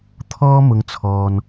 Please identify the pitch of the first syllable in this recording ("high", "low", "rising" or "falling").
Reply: high